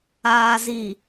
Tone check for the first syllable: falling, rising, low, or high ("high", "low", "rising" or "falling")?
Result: low